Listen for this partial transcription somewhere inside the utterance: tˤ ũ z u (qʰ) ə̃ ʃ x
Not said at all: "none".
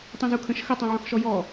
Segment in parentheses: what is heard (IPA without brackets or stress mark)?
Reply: kʰ